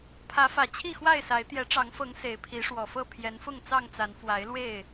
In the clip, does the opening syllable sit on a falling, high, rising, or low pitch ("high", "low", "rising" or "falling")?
rising